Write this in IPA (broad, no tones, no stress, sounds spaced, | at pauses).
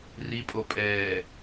r i pʼ o pʼ ɛː